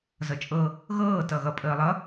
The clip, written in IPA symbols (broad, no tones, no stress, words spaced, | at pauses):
zʌt͡ʃʼɤ | ɣɤː tʌɣʌ pʼəːlˠʌ